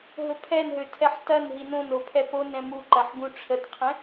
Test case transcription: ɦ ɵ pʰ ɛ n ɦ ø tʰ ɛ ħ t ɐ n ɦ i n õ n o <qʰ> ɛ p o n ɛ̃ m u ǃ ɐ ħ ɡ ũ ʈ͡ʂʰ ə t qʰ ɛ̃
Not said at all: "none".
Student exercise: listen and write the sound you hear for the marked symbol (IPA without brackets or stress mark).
pʰ